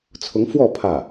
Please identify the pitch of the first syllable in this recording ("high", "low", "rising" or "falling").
rising